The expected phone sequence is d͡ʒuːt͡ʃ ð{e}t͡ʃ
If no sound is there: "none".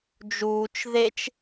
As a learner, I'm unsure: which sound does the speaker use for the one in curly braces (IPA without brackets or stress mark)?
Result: e